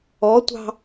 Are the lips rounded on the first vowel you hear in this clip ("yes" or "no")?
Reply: yes